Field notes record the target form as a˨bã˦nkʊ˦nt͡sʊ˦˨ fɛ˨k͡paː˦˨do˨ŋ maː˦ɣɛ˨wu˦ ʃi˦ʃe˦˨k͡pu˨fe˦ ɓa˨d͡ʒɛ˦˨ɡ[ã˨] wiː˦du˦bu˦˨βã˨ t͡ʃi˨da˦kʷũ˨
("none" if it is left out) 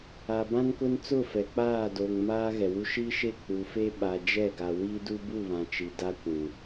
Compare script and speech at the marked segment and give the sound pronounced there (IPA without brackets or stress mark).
a˨